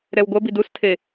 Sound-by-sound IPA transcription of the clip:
ɾ ɛ w ɡʷ ɐ b i d u s tʰ e

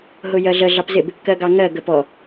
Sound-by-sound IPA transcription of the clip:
ɦ ʊ j ɜ ɮ ə ɮ ɑ p z ɪ b | k ɜ ɡ ɑ ŋ ɜ ɡ ə p ɔ

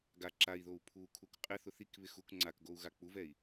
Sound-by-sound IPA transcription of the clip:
ɡ a ǁ a i̯ ð o u̯ pʰ u kʰ u k qʼ ɪ θ ʊ θ i k β ɪ x u k ŋ͡ǀ a k ɡ o u̯ ɣ a k͡p u v ɛ i̯

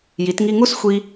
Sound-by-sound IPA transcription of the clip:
j i˩˧ t ŋ i˧ ŋ u˥˧ s xʷ i˧

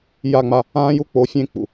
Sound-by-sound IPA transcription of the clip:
j a˦˨ ŋ͡m a˦ | ãː˦ j u˦ k͡p o˨˦ fʲ ẽ˦˨ k͡p ṵ˨

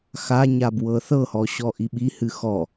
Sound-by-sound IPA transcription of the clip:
x a ɲ a b w ɤ θ ɤ h ɔ ɕ ɔ ʔ i ɓ i h ɨ x ɔ

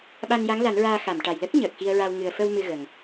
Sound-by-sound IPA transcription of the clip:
ɓ a˧ n j a˧˥ ŋ l a˨˩˦ n ɹ aː˧ x a˨˩˨ m ʈ a˨˩ j l ə˦˥ k̚ ɲ əː˨˩ k̚ x i˧ ə̯ ɹ a˧ w ŋ ɨ˨˩ ə̯ f ə˧ w m ɨ˧ ɣ ə˨˩ ŋ

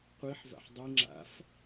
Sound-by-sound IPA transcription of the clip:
qʷ i ħ v a̰ ħ dˤ i ŋ͡ǁ a̰ f

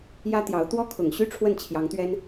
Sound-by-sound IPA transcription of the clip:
j ä˥ t̪ j ɑ˧˥ ʊ̯ t̪ w ɔ˥ kʰ ʊ˨˩ ŋ ɕ y˥ ʈ͡ʂʰ w ə˥˩ n t͡ɕʰ j ɑ˧˥ ŋ t̪ ɥ ɛ˥ n

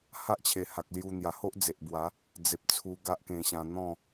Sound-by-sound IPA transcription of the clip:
h a˦ ʔ t͡ɕʰ e˨˩ h a˨ k̚ l j u˧ n̪ j a˨˩ h o˦ ʔ d͡z e˨ ʔ b w a˨˦ | d͡z e˨ p̚ t͡sʰ u˧ ɡ a˦ ʔ k ẽ˧ ɕ ã˧ n̪ ɔ̃˥˧

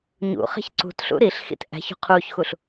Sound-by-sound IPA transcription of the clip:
ɲ ṵ χ e̤ ç ǀ ṳ t ɬ ṵ ɾ i ɬ x ḭ t ʔ æ̤ ç ṳ qʰ uː ç x u ɬ

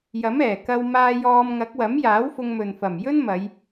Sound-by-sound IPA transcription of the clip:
j ɐ˨˥ m ɛː˨˩ k ɐ˧ w m aː˧ j ɔː˧ m ŋ ɐ˨˥ k̚ w ɐ˨˥ m j aː˨˥ w f ʊ˧ ŋ m ɵ˨ n f ɐ˨˩ m j ɵ˥ n m ɐ˨˧ j

